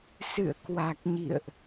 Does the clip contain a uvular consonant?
no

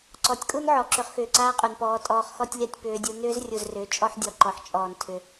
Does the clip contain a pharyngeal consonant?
yes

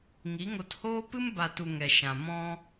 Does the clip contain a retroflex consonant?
no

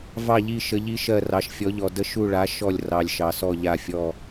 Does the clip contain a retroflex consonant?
yes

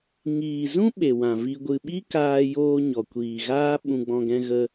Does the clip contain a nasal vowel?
yes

